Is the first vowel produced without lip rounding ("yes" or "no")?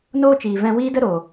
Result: no